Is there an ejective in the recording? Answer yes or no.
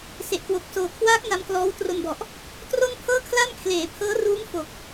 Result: no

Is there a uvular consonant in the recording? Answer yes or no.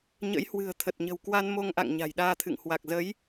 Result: no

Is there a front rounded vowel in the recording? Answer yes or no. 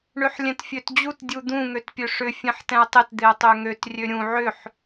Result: yes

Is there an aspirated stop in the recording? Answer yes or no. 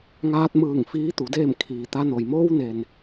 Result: yes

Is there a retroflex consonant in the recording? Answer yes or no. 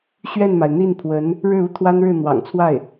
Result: yes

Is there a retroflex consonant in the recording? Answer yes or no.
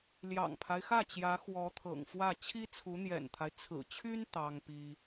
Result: no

